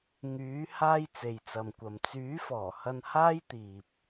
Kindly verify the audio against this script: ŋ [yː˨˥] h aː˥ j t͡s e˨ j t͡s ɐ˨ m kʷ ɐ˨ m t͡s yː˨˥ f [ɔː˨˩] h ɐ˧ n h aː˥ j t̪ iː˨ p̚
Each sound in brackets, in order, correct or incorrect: correct, correct

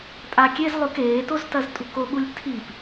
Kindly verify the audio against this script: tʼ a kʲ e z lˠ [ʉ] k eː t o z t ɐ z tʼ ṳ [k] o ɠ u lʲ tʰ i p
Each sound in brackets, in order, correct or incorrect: correct, correct

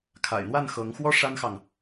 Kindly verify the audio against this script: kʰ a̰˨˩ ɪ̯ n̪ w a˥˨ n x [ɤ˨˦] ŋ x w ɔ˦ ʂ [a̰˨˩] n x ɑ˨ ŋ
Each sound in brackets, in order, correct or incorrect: correct, incorrect

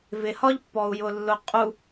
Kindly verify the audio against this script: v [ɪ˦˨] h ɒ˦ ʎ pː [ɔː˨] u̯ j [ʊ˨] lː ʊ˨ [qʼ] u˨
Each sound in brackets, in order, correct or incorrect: incorrect, incorrect, correct, correct

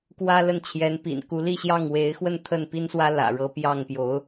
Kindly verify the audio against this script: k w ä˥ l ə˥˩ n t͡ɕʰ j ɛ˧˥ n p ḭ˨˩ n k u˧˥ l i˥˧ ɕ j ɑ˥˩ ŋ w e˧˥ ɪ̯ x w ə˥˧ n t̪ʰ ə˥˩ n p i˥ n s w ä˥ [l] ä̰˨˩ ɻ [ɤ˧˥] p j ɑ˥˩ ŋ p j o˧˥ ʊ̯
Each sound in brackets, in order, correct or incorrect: correct, correct

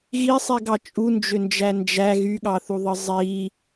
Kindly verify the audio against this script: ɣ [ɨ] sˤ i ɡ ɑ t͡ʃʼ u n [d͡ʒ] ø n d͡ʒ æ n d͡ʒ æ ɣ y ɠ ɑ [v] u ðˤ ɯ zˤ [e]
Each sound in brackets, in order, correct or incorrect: incorrect, correct, incorrect, incorrect

